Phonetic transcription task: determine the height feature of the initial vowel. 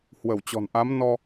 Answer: mid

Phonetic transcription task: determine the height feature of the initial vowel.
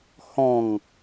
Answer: mid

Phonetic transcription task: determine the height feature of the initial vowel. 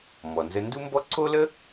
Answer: mid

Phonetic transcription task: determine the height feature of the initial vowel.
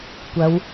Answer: low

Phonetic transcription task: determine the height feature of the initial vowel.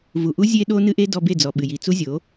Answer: high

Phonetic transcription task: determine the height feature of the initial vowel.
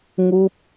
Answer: high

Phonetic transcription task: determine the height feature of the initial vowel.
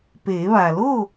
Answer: mid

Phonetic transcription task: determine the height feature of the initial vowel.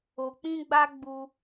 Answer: mid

